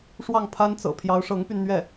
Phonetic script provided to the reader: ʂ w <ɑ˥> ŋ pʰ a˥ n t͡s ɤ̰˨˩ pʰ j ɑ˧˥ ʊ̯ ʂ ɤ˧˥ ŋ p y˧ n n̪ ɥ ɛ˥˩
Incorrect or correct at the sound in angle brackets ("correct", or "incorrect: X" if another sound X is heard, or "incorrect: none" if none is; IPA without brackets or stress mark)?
incorrect: ɑ˥˩